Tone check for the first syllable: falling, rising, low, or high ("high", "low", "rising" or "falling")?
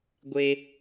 high